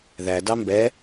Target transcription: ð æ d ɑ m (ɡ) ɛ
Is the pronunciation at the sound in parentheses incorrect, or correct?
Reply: incorrect